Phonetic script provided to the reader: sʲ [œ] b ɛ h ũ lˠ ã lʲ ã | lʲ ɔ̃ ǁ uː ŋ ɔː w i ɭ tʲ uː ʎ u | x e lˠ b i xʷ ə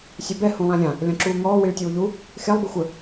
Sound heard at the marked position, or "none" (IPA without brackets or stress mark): œ